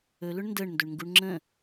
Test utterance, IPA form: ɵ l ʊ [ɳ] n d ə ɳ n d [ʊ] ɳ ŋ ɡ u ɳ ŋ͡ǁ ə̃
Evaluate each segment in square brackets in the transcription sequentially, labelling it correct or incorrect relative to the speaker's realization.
correct, incorrect: ɵ

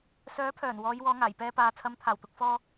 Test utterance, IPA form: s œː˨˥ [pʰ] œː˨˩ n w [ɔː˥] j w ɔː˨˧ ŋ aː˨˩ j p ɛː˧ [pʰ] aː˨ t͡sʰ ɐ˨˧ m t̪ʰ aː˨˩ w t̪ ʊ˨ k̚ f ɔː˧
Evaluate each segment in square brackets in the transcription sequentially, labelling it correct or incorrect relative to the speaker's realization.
correct, incorrect: ɔː˨˧, incorrect: p

